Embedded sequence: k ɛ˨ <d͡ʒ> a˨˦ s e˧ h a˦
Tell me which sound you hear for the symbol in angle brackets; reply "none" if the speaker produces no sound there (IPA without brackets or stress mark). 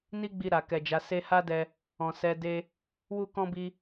d͡ʒ